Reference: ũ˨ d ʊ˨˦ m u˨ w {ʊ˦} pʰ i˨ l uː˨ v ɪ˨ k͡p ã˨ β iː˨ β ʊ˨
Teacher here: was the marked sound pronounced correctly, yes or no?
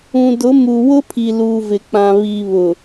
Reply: yes